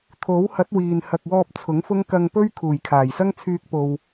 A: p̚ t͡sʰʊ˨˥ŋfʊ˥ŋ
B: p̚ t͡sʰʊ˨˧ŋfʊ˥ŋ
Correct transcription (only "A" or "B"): A